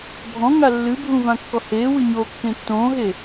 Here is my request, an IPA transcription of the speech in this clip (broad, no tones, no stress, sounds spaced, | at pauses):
bʱ ɔ̃ ŋ a lː ɨ bʱ ũ v ã kː ɔ h eː w ɨ ɲ o kː ẽ tː õː ɦ e